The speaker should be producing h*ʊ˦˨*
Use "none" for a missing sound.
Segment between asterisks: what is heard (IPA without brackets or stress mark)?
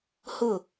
ʊ˦˨